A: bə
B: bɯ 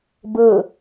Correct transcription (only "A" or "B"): B